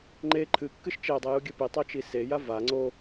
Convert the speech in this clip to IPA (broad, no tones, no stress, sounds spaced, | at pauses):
ŋ͡ǃ e ǃʰ ɨ kː ɨ ʃ t͡ʃ e dˤ i j u ɡʲ ɨ p i tˤ o t͡ʃ i s e j a v a ŋ͡ǀ o